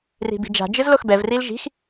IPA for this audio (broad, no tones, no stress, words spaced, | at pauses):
ri̤bi̤d͡ʒa̤ d͡ʒɯzloxbɛv rilʒi̤x